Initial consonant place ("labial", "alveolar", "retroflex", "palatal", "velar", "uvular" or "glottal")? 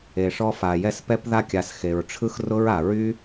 retroflex